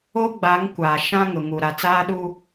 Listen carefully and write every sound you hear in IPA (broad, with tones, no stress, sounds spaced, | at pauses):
o˦ ɡ͡b a˨˦ ŋ kʷ aː˨ ʃ ã˦ ŋ ʊ˨ ŋ u˨ ɾ a˨ t͡s aː˦ ɗ u˦